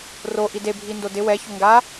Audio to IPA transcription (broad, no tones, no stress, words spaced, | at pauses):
ro ʔidebʱindo dɪ wɛço ŋɡa